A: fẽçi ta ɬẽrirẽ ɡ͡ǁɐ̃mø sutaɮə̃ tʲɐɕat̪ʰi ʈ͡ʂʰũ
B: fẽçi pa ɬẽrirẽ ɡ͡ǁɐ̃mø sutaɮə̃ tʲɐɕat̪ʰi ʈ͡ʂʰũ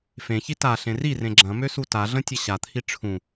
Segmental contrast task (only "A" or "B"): A